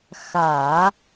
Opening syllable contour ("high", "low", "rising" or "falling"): low